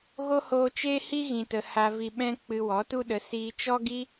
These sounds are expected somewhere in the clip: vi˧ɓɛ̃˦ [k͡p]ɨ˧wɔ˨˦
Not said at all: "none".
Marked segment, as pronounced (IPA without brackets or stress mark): k͡p